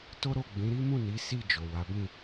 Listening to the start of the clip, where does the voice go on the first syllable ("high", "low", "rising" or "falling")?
high